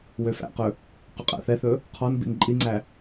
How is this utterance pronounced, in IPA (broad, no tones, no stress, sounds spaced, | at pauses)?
w ø f æ̰ q ɵ | q ɵ qʼ æ̰ θ ɛ θ ɵ | qʰ ɔ n b ḭ n ǃʼ i ŋ͡ǀ æ